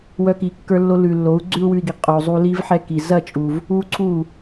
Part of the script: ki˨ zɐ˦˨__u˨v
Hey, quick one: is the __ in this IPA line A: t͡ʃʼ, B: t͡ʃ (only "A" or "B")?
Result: A